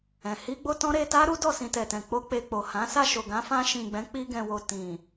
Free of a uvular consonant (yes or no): yes